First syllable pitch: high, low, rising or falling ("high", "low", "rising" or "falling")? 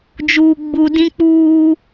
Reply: low